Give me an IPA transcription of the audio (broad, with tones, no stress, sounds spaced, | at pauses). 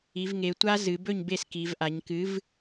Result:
i˩˧ v ŋ e˩˧ tʷ a˦˥ z ɨ˩˧ b ɵ˥˨ ɲ b e˥˨ s k i˩˧ v ʔ a˩˧ ɲ k ɨ˨˥ v